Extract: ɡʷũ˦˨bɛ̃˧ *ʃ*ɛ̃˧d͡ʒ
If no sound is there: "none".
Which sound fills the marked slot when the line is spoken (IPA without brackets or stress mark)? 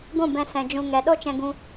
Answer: s